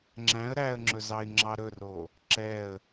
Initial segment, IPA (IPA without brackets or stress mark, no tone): ŋ͡ǁ